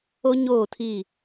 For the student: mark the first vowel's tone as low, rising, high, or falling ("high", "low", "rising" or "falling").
high